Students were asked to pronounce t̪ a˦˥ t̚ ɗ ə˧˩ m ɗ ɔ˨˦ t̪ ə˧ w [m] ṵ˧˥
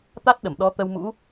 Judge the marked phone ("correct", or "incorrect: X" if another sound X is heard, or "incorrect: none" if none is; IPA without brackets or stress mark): correct